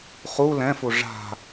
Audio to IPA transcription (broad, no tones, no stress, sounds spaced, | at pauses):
χ u l ɛ̃ f u ʐ a̤